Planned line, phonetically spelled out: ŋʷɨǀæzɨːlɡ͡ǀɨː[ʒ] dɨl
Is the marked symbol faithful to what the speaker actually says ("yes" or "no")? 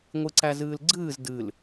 no